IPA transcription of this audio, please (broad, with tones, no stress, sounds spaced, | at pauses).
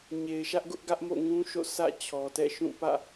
ɲ e˨ ɪ̯ ʃ ä˦ ʔ ɡ ʊ˦ ʔ ɡ ä˦ ʔ m o̰˦˨ ŋ ũ˦ ʃ o̰˦˨ s ä̰˦˨ t͡ɕʰ ɔ˨ t ɛ̰˦˨ ʃ ũ˦˨ p ä̰˦˨